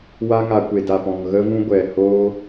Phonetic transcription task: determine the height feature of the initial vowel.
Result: low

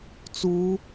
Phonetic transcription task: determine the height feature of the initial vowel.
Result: high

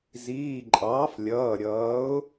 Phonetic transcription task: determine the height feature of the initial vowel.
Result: high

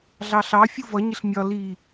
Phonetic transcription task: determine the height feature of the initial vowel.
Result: low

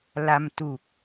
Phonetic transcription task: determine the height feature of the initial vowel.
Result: low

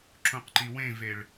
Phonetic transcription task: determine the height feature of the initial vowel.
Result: high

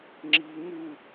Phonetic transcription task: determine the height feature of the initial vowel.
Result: high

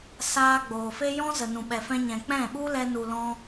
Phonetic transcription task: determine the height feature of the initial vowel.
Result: low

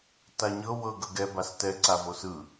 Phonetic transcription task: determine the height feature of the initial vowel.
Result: low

